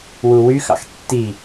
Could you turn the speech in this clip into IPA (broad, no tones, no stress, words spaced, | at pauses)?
wuwyxɑ̰x tːi